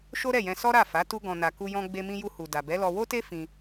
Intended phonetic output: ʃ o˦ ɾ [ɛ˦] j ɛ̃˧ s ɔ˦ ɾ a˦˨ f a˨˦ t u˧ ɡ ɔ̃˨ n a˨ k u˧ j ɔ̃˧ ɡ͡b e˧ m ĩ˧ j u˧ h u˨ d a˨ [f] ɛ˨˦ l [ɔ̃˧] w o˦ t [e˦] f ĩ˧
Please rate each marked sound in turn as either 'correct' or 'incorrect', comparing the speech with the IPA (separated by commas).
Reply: incorrect, incorrect, incorrect, correct